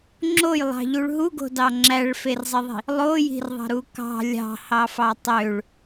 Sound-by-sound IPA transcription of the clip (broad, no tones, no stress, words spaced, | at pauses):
ŋ͡ǁojlˠɑ̤ʎuɭ ɦuɡo̤dɑ ŋ͡ǁæɭferzˤiðˤi̤ | lˠoji̤rðˤɑ̤ɾu kɑ̤ lʲɑ̤hɑfɑ tˤøɭ